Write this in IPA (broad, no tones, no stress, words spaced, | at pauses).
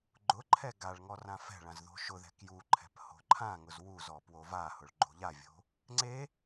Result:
ɡ͡ǃʊǃʰɛ ɡaɭŋɔ rãfɛ̤ɭãz ðo̤ʃʊðɛ̤ kjuǃʰɛ̤p ho̤ǃʰãŋʊz wuzɔ pwovahʊɭ ɡ͡ǃo̤ʎavʲo̤ | ŋ͡ǀe